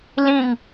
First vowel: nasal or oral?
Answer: nasal